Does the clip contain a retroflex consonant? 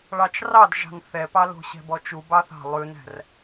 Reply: yes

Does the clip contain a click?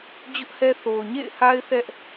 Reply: no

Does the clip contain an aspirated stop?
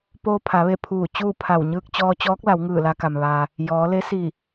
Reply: yes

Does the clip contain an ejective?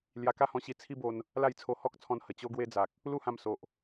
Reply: no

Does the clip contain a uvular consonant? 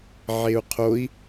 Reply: yes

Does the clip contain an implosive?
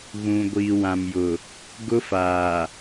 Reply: no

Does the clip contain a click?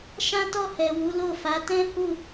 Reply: no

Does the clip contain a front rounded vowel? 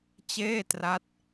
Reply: no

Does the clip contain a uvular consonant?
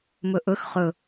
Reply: yes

